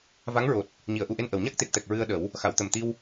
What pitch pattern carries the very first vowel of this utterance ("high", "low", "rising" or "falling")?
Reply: rising